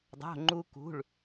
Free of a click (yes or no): no